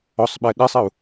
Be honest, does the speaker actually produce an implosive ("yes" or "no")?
yes